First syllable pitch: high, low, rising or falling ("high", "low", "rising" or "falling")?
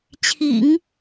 low